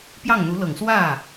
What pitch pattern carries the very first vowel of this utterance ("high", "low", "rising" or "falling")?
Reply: falling